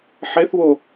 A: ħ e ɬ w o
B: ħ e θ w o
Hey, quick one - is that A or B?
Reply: B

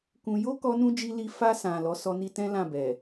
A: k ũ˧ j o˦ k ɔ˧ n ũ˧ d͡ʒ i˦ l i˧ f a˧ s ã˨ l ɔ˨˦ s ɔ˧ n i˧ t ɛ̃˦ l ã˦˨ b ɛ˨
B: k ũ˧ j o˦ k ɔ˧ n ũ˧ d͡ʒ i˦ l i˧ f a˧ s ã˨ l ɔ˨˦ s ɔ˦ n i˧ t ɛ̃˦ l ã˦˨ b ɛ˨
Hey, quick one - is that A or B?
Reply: A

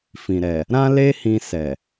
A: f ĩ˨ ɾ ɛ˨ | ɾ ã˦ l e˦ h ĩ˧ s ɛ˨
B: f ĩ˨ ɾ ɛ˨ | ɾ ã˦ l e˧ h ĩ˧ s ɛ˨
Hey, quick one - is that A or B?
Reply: A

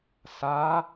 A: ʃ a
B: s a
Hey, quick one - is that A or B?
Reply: B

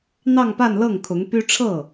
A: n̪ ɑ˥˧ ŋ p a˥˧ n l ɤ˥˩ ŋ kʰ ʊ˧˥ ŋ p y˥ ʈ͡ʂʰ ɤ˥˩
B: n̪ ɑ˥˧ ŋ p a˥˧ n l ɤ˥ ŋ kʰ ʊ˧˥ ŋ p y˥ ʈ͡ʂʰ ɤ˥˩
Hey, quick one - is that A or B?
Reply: A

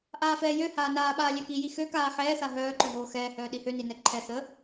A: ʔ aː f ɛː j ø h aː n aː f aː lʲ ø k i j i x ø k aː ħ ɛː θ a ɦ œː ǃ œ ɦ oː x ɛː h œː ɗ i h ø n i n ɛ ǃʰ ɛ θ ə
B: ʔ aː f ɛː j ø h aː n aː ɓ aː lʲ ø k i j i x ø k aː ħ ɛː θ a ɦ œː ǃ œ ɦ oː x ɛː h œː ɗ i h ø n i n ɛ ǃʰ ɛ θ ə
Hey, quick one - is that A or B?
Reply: B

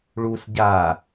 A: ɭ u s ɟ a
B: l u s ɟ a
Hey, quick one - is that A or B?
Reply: A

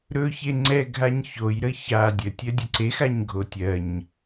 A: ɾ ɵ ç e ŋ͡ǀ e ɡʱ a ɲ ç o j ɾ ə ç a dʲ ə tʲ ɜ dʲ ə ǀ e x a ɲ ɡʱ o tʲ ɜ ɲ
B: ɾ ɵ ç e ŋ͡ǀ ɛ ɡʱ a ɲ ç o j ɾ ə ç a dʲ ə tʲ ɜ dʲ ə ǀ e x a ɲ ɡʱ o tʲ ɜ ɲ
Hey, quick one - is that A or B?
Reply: B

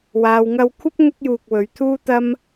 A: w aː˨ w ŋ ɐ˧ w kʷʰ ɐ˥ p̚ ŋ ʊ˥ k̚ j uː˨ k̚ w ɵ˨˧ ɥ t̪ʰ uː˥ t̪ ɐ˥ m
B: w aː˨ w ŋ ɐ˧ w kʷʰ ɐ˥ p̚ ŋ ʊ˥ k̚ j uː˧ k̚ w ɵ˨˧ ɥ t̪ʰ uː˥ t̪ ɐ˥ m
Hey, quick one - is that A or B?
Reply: B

